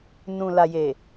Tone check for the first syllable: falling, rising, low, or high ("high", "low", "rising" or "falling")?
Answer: low